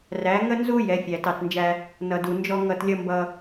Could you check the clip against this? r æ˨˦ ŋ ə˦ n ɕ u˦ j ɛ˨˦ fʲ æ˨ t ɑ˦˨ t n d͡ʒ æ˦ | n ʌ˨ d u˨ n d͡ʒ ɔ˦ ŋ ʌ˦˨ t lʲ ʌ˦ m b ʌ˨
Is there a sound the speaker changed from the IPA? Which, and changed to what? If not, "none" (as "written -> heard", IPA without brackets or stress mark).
ɕ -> z